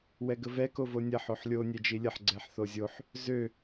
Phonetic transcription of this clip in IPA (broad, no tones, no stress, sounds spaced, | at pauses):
w ɛ ɡ ə v ɛ k o v o nʲ ɐ ħ o ħ lʲ o nʲ ɛ d͡ʒ i lʲ ə ħ ɡ͡ǀ ɛ ħ θ o zʲ o ħ | z ø